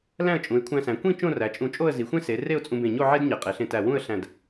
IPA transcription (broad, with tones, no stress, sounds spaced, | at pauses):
l æ̃˥˧ ə̯ t͡ʃʼ ũ˩˧ ɪ̯ kʷʰ æ̃˧ s æ̃˩˧ kʷ ĩ˥˧ t͡ʃ õ˥˧ r æ˩˧ t͡ʃʼ ũ˧˩ t͡ʃʼ o˥˧ ə̯ z i˩˧ xʷ ẽ˥ s e˩˧ r e˥˧ ʊ̯ t͡sʼ ũ˧ b ẽ˧˩ ɲ o˥˧ ʕ e˥ d ɲ e˩˧ qʼ e˩˧ ɬ ẽ˧ t æ˧˩ w ũ˥˧ ə̯ ɬ æ̃˧˩ d